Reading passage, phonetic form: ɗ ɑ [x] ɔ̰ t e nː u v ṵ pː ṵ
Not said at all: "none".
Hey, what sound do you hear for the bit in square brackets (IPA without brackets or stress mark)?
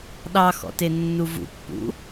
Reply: x